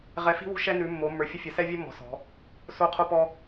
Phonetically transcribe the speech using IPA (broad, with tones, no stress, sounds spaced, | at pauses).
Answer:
ʁ ɛ˨˦ f i̤˦ w ṳ˦ ʃ ɛ˦ n ʉ˨˦ mː o˨˦ mː ə˞˨˦ fʲ ə˦ fʲ ə˨˦ s ɛ˦ vʲ ɘ˦ mː ɔ̤˨˦ s ɔ̤˨˦ | s o˦ qʰ o˦ p ɔ˦